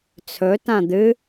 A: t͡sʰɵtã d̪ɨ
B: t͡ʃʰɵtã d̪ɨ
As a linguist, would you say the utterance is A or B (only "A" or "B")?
A